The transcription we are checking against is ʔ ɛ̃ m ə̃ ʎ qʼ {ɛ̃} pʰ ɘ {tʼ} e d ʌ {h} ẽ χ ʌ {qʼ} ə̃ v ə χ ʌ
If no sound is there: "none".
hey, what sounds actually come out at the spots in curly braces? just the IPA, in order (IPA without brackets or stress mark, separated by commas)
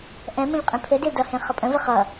ẽ, d, h, pʼ